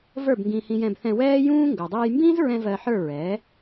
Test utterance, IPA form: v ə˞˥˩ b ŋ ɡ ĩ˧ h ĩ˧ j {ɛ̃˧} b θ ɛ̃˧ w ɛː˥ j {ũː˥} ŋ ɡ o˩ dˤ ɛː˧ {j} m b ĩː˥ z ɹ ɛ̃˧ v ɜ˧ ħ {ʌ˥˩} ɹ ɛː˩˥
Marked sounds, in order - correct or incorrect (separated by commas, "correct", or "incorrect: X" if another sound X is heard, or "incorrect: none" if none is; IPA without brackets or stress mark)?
correct, correct, correct, incorrect: ə˞˥˩